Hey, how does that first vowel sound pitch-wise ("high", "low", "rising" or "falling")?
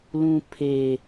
high